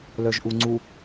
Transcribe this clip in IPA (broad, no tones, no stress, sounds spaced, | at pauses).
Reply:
l œ ʒ ʔ u ŋ͡ǀ u